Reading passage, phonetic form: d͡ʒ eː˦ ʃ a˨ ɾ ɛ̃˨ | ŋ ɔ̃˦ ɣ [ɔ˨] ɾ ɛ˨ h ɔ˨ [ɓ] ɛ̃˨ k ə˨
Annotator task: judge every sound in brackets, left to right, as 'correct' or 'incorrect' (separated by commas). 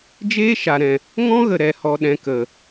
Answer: incorrect, incorrect